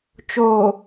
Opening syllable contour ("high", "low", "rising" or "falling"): low